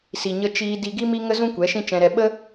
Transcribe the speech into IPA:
s i˨ ɲ ə˧ t͡ʃ iː˧ d i˧ ɡ i˦ m i˦ ŋ ə˦ z ũ˦ kʷ ɛ˨˦ ʃ ĩ˦ t͡ʃ ɛ̃˧ ɾ ɛ˧ ɓ ə˦

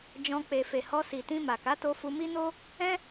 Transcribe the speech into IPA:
d͡ʒ ɔ̃˧ k͡p e˨ f e˨ h ɔ˧ s i˨ t ĩ˧ m a˨ k a˨˦ t o˧ f u˧ m i˦ n o˦ | ɛ̃˦

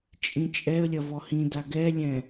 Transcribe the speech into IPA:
t͡ʃʼ ĩ t͡ʃʼ ɛ ə̯ lʲ ɐ v ɔ h ĩ d a ɡ ɛ lʲ ɛ̃

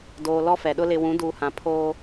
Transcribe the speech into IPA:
d oː˨ l ɔ˦ f ɛ˨ ɗ ʊ˦ l ɪ˨ w ũ˨˦ d uː˨ h ã˨ pʰ oː˦

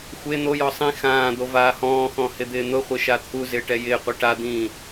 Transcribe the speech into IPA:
xʷ e n̪ o j ɔ sˤ ĩ x ãː d̪ o v aː h ɔ̃ː x ɔ̃ h ɪ d̪ ɪː n̪ ʊ χʷ ɪ ʃ a t̪ʰ u z ɪː ʈ ɛ j ɪː qʷ ɛ ʈ a d̪ ĩː

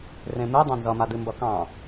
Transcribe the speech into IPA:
r ẽ m ɨ dˤ ã n z ʌ m a d ɨ m b ʌ k ɑ̃

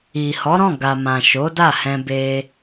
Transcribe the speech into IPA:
i˨ h ɔ˨˦ ɾ ɔ̃˦˨ ɡ a˨ m ã˨ ʃ o˨˦ d a˦˨ h ɛ̃˧ b e˦

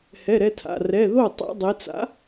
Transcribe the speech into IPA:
h ɛ˩˧˩ ɾ ɛ˧ tʰ a̰˩˧˩ r ɛ˩˧˩ ð o˥˩ tˤ a̰˧ dˤ ɪ˩˧ t͡s a̰˨˥

